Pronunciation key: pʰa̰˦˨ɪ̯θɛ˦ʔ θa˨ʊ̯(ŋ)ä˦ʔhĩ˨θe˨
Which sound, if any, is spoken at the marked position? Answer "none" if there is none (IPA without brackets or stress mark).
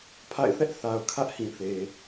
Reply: kʰ